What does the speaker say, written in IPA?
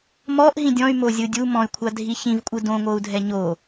m ɔ ʔ ɦ ĩ dʲ ɔ̃ y̯ m o zʲ ɯ dʲ u m ɔ̃ y̯ kʷʰ a dʱ i ç ĩ v kʷʼ ɯ d õ ŋʷ ɤ u̯ dʱ ɛ ɲ o

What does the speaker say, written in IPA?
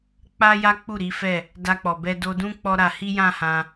k͡p a˦ j a˦ k͡p u˦˨ ɾ i˨˦ f ɛ˦˨ | d a˧ k͡p ɔ˨ b ɛ˧ d o˧ d ũ˦ k͡p ɔ˦ ɾ a˧ h i˦ j ã˦ h ã˧

